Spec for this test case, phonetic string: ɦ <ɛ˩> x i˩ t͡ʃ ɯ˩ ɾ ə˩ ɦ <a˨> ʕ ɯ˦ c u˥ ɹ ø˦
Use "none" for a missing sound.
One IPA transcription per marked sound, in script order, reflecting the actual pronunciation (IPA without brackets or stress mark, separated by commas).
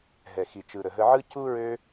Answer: ɛ˩, ə˨